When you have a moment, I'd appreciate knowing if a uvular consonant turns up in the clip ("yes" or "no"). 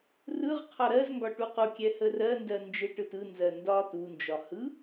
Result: yes